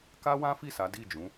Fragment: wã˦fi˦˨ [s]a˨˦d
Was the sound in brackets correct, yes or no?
yes